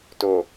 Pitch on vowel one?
low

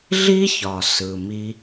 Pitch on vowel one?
high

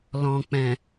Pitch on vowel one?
low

